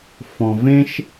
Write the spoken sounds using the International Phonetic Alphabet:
f ɔ̃˨ v ẽ˥ ʃ

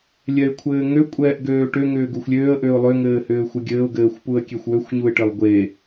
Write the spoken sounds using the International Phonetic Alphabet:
lʲ ɛ ɪ̯ kʷʰ ɘː ŋ ø kʷʼ ɛː ʔ ɡ øː ʈ ø ŋ ʏː ɡ u xʷ lʲ øː ə̯ ʔ ø ʊ̯ lˠ ø ŋ ɘː h ʏː xʷ ɘ ɡʲ ɘː ʊ̯ ɡ ɘː xʷ p u ə̯ kʲ e xʷ w ø xʷ ɲ u ɪ̯ ʈ ɘ lˠ ɡʷ e

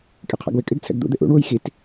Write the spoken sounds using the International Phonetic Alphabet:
kʼ e qʰ a̰ ɡ w ɪ kʼ ɪ ɡ t͡sʰ ɛ̰ ɡ d̪ ṵ d̪ ɪ ʔ ṵ ɳ w u j x i t

